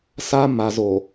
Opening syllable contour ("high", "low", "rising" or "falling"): high